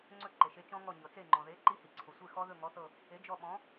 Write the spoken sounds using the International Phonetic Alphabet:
ŋ͡ǀɵ˦˨ ǃe˩ʃe˨˥t͡ʃɔ̃˦˥ŋɔ˦˨ ɲɤ˩t͡se˦˨ŋ͡ǃɔ̃˩ðe˨˥ ǃi˦˥hi˩ ǀʰʊ˩sʷe˦˨ xɔ˦˥ðɵ˦˨ŋɔ˨˥θɤ˦˨ | e˨˥d͡ʒɔ˦˨ ɓɔ̃˨˥

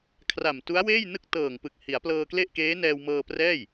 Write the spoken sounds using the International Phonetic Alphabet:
kʰra˨˩mtu˦˥a̯weː˥˩jnɯ˥˩k̚ tɤː˨˩ŋpɯ˨˩k̚ hi˩˦a̯plɤː˧kle˥˩ʔkeː˦˥ nɛː˧wmɤː˧prɛː˥˩j

